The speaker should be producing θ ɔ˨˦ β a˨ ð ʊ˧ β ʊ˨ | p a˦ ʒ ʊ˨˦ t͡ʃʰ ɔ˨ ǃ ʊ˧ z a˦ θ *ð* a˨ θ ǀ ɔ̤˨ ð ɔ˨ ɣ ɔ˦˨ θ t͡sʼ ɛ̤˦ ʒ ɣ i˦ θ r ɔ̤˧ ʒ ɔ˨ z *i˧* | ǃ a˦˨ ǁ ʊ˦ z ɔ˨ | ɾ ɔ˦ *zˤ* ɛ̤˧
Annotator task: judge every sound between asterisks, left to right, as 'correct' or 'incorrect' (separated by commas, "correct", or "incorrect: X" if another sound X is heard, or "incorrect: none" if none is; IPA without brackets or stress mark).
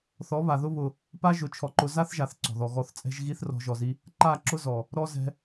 incorrect: ʒ, correct, incorrect: z